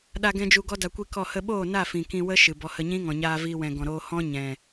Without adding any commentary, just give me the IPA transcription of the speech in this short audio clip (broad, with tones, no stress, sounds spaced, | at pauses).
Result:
ɗ a˧ ɡ ɛ̃˧ d͡ʒ u˧ ɡ ɔ˦ d a˧ kʷ i˦ k ɔ˦˨ h ə˧ ɓ oː˦˨ n a˦˨ f ĩ˨ k ĩ˧ w ə˦ ʃ ɨ˨ b ɔ˨ h ə˧ ɲ ĩ˦ ŋ ɔ̃˨ ɲ aː˧ v iː˧ w ɛ̃˨ ɡ ɔ̃˨ ɾ oː˧ h ɔ̃˦ ɲ ɛ̃˨